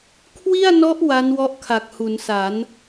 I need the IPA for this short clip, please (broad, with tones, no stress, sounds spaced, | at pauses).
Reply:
kʰ w i˥˩ a̯ n ɔ˦˥ ʔ w a˦˥ n w ɔ˦˥ ʔ kʰ a˨˩ k̚ h u˩˦ n s a˩˦ n